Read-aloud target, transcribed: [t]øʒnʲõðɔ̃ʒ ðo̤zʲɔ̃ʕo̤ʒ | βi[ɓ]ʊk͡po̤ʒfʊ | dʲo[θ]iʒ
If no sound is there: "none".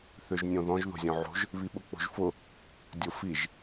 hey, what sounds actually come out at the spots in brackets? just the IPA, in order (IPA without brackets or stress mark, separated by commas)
θ, ɓ, f